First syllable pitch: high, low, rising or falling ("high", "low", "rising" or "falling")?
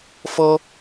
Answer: high